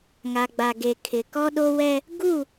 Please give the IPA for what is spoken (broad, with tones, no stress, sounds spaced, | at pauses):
ŋ a˨ ɡ͡b a˨ ɡ e˨ kʰ ɪ˨ k ɔ˦ ɗ o˦ w ɛ˦ | ɡ u˦˨